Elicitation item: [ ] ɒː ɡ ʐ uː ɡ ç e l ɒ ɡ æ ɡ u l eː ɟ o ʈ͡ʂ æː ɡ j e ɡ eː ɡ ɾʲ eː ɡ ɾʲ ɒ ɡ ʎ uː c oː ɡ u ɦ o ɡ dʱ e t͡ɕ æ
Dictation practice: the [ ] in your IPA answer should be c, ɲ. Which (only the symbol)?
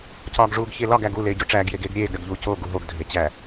c